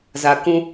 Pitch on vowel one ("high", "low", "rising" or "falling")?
low